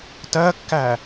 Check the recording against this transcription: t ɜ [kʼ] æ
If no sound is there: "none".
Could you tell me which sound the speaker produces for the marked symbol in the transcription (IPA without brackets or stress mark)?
kː